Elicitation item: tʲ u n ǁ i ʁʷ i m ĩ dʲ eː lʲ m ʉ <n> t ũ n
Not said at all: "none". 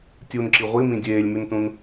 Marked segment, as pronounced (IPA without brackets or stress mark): n